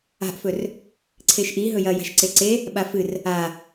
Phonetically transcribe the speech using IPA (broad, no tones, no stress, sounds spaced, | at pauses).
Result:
a̤ ʔ f ɵ r | ǀʰ e ʃ ʔ i ɦ ɵ j ɐ j a̤ ʃ ǀ e ǀ e | ɓ a f ɨ r | a